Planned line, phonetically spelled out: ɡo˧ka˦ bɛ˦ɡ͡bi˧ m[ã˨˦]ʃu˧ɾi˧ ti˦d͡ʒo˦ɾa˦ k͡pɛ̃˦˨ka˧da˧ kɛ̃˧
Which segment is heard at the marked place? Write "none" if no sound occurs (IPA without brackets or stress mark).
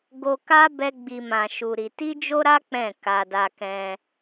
ã˧